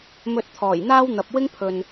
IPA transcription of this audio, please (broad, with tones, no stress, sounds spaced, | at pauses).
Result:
m ɵ˧ t̚ t̪ʰ ɔː˨˩ j n̪ aː˥ w n̪ ɐ˨ p̚ w ɪ˥ ŋ pʰ ɵ˨ n